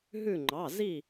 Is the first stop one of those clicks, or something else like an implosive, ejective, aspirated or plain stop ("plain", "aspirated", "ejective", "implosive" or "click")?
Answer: click